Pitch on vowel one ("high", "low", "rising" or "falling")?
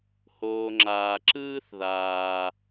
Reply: low